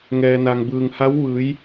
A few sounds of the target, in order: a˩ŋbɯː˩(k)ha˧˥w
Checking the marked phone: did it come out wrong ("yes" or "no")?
yes